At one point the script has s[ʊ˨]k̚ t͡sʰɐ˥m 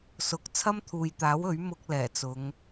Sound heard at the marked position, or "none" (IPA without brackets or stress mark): ʊ˨